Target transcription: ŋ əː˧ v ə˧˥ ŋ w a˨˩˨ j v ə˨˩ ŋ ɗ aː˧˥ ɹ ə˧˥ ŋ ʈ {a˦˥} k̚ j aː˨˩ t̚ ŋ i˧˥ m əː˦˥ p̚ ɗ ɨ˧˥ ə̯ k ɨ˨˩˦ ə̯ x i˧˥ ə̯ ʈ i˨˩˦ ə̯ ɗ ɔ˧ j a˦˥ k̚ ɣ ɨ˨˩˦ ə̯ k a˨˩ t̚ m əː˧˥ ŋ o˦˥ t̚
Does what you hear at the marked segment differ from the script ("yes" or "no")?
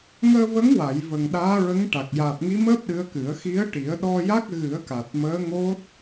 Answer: yes